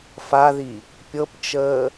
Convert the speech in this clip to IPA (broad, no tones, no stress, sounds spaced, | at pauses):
f a ð i | pʲ ɤ p t͡ʃ əː